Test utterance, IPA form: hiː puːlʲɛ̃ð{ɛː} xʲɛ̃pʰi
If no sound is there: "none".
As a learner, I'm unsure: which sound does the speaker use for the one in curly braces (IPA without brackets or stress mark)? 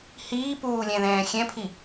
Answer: ɛ̃ː